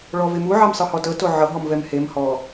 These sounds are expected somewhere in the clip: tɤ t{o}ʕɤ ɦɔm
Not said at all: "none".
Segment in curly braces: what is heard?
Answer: o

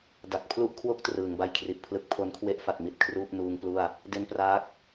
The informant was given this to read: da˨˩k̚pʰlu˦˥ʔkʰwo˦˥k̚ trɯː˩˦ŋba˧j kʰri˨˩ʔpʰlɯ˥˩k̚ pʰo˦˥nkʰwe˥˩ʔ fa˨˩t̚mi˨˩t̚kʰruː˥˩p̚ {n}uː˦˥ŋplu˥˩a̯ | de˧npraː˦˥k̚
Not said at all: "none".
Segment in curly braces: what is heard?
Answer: n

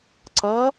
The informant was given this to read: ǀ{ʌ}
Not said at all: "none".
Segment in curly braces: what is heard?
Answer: ʌ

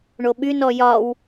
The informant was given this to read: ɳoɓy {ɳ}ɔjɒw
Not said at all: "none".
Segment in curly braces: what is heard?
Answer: n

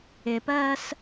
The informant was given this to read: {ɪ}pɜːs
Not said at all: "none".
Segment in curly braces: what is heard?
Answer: ɪ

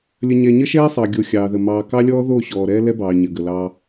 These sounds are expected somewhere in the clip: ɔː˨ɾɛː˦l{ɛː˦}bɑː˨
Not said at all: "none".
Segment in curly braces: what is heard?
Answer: ɛ˦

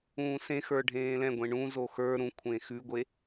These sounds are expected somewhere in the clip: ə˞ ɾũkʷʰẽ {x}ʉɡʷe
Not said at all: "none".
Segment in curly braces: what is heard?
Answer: x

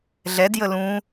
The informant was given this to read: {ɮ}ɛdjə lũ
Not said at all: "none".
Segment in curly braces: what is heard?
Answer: ɮ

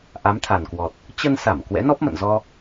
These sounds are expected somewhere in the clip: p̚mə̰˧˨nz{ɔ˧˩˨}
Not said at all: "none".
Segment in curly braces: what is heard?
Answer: ɔ˧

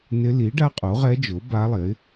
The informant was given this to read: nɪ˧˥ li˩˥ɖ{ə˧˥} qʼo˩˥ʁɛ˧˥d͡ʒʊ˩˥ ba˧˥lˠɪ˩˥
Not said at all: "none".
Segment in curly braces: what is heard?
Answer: a˧˥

